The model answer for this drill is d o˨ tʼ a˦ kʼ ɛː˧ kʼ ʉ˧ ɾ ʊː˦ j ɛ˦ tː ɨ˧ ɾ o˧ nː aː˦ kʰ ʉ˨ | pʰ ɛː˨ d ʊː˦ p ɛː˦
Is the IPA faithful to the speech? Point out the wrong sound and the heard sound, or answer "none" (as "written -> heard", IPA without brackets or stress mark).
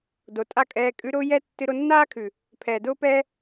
none